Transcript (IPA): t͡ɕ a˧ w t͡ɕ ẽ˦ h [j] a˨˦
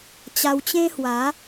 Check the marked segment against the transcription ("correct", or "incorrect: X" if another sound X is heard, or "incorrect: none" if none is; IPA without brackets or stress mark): incorrect: w